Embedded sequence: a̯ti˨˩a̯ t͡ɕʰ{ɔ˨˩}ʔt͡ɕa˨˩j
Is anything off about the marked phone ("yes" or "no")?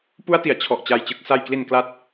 no